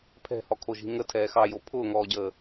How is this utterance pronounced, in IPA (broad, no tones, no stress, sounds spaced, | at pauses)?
pʰ ɛ̤ h ɔ kʰ o ʒ i̤ ŋ ə tʰ ɛː x ɑ j o pʰ ʊː ŋ ɔː ɟ əː